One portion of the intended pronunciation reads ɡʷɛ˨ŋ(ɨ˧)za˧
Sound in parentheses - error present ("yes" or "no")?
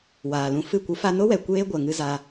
no